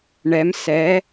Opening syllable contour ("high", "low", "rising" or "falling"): rising